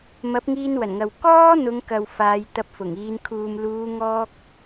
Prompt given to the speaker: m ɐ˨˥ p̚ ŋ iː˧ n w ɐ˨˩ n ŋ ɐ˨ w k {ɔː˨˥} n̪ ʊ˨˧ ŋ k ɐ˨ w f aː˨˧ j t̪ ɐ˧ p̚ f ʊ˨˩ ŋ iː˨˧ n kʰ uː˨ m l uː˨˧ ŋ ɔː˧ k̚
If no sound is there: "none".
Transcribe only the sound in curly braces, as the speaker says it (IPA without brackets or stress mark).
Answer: ɔː˥